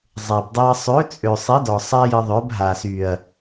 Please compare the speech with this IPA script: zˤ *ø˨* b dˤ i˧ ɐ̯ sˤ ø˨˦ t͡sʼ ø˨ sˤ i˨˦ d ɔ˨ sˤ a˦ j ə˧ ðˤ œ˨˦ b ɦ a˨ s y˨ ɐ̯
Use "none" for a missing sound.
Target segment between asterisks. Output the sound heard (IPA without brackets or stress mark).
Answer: e˨